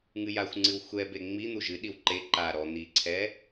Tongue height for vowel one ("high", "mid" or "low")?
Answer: high